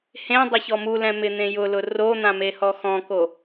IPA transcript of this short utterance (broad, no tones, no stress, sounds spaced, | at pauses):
h ẽ dˤ ɪ ç ɔ m u l ɛ̃ m ɪ n̪ ẽ j ʊ l ʊ r o n̪ ã m e h ɔ x ɔ̃ k o